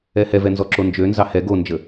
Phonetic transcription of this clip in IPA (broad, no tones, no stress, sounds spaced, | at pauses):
ɛ h ɛ v ɛ n z ɔ ǁ o n d͡ʒ ø n z ɑ h ɛ ɡ o n d͡ʒ ə